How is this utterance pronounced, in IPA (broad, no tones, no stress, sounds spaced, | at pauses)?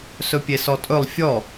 s ɵ pʲ e s ɔ tʼ ɵ lˠ fʲ ɔ